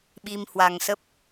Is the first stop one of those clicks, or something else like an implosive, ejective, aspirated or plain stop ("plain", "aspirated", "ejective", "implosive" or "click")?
implosive